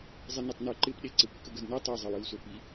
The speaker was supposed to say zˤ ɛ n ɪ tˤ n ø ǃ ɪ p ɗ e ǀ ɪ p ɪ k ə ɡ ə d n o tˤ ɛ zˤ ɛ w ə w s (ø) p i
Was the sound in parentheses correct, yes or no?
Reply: yes